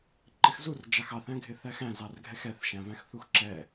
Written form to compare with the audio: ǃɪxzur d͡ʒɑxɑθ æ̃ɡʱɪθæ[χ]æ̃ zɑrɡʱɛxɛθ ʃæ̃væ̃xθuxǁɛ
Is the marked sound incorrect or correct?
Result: incorrect